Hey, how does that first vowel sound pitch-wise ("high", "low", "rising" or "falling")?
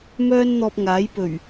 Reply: high